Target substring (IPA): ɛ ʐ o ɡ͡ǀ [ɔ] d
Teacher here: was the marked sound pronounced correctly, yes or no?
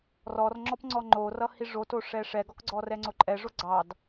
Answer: no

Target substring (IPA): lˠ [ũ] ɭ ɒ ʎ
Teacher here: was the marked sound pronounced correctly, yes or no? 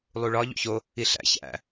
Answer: no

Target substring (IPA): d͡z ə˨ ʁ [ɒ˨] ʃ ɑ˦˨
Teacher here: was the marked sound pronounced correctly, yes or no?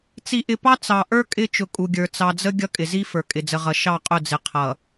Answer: no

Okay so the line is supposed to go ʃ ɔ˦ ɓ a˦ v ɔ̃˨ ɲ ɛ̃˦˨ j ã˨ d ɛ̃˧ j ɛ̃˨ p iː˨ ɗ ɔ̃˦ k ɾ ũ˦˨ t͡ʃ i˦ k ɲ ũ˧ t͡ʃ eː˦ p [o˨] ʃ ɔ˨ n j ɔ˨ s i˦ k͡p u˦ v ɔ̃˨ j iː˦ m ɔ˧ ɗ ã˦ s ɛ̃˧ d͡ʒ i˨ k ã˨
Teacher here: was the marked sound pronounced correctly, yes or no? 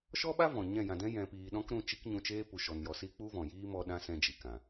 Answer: no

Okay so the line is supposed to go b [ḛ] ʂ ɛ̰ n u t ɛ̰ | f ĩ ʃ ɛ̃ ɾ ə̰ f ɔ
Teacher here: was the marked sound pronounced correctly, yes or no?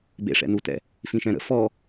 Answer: yes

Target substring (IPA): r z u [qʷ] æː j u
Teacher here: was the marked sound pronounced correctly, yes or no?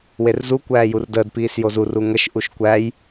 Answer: no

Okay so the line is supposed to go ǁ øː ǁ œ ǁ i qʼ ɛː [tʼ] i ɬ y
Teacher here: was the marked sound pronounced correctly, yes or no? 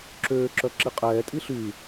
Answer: yes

